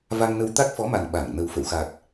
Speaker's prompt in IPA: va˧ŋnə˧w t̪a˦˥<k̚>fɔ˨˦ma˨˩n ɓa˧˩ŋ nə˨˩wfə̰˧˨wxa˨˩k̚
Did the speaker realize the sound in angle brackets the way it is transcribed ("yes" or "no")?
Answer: yes